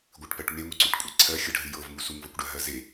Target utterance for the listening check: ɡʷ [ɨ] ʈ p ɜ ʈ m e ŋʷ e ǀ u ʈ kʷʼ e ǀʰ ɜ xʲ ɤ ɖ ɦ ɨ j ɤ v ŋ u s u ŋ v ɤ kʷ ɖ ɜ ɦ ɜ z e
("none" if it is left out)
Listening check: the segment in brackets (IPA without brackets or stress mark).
ɨ